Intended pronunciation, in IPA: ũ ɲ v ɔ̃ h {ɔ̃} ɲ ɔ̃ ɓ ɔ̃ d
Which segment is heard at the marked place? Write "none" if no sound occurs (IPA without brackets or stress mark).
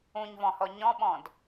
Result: ɔ